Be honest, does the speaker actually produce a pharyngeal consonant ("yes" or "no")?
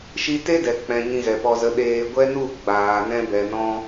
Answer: no